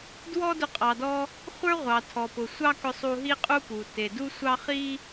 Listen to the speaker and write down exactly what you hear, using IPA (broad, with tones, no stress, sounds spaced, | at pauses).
d w ɔ˥ d ʊ˧ qʼ ɑ˩ d ɔ˧ | χʷ ə˞˥ ʁʷ ɑ˩ tʰ ɔ˩ p ʊ˩ sʷ ɑ˥ k ʊ˧ sˤ u˧ ɦ i˥ qʼ u˥ p u˩ t e˩ d u˥ sʷ ɑ˥ χ i˥